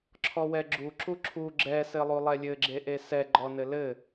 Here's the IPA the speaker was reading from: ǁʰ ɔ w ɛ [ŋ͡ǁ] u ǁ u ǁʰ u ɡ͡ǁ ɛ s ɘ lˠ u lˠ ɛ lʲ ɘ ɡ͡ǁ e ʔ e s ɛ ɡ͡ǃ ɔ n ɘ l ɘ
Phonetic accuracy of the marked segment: incorrect: ɡ͡ǁ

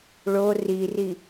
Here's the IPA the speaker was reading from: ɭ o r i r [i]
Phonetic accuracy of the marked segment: correct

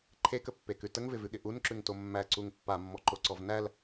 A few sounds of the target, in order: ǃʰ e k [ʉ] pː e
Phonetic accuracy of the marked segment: incorrect: ə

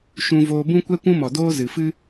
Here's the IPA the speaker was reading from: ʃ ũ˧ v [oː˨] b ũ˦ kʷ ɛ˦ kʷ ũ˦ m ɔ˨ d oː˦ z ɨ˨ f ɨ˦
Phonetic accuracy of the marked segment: incorrect: oː˧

